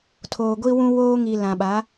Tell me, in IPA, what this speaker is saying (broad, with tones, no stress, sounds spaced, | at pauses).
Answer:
tʰ oː˨ ɡʷ i˦ w ũ˦ w oː˦ ŋ i˨ l ã˨ ɓ a˨˦